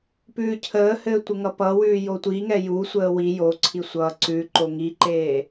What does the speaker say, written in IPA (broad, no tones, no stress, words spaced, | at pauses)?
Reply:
pʉːcʰəːhɘː tʷəŋʌpʌwʉː jotʷiŋɛ jusʷəː wi joǀʰi sʷʌ ǀʉǃo ŋiǃeː